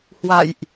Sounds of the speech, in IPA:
h w a̰˧˨ j ʔ

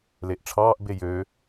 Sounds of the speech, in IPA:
l e ʔ ʈ͡ʂʰ ɑː ʔ b e j ø

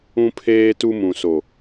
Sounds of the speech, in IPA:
ũ˦ pʰ eː˦ t u˦ m ũ˨ s o˨

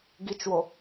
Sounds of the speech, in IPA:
ɡ i t͡ʃ w o

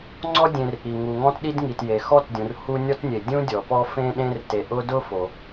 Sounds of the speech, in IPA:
ŋ͡ǀ ɔ˥ dʲ ẽ˨ r ʔ i˩ ŋ u˩ ŋ ɔ̃˦ t ɗ i˦ d ŋ i˩ t j e˩ x ɔ˥ t dʲ ũ˩ r h u˦ nʲ ɔ˦ t nʲ e˩ dʲ ũ˥ dʲ ɔ˩ p ɔ˥ f ẽ˥ ɗ ẽ˦ r t e˨ ʔ ʊ˥ d ʊ˥ f o˩

